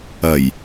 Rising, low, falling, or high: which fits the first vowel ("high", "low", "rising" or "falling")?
low